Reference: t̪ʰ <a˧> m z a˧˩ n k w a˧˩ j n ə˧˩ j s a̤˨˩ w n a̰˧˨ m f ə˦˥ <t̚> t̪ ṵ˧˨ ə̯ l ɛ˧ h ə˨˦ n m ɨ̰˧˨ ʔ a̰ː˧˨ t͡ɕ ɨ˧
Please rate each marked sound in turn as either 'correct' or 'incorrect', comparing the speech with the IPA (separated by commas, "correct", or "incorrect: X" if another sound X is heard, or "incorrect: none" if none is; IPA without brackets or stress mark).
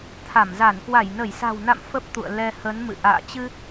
incorrect: a˧˩, incorrect: p̚